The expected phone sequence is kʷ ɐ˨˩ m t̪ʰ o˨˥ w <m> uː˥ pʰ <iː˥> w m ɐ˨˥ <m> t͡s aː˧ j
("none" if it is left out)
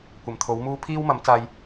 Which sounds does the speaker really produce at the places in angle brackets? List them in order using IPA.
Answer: m, iː˥, m

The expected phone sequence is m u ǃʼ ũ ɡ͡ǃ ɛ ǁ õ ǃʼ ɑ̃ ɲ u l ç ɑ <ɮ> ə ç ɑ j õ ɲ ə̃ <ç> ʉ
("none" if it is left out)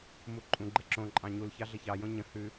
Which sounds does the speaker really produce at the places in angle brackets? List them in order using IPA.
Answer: ɮ, h

